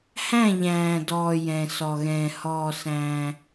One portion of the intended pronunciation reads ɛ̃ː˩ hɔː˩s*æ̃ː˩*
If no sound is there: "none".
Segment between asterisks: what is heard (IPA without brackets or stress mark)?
æ̃ː˩